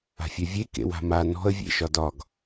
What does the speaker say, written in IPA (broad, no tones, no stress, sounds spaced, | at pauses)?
a̤ fʲ œ vʲ e k ḛ w a̤ m a n ɔ̤ ə̯ vʲ ḛ ʃ ɒ d ɒ ɡ